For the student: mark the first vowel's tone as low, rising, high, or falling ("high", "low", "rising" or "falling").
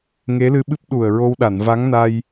rising